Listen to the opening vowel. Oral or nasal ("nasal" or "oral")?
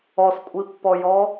oral